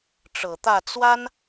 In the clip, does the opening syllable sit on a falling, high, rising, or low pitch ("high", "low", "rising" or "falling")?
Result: low